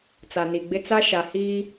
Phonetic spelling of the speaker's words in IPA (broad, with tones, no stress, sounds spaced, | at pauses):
t͡s a˨ n i˨ ɡ͡b ɪ˦ t͡s a˦ ʃ a˨ h iː˦